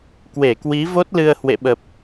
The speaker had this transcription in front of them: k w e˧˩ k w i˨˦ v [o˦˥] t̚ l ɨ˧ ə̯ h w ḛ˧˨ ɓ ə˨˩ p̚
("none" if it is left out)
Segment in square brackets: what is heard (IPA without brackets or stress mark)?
o˦˥